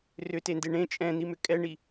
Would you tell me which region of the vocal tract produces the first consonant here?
tongue tip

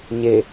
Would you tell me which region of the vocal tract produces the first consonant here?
palate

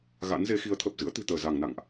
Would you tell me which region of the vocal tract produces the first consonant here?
velum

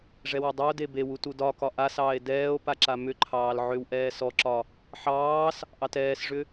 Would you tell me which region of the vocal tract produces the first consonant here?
retroflex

